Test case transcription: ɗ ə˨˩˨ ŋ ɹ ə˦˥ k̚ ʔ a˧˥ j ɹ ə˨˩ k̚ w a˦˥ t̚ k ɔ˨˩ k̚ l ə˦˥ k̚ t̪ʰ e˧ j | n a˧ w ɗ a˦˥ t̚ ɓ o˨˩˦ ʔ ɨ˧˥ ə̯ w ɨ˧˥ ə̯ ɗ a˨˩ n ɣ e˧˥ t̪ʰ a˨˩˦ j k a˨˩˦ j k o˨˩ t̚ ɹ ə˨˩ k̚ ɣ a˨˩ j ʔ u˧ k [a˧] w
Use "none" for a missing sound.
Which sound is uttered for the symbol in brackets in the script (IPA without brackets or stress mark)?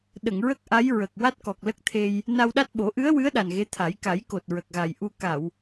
a˨˩˨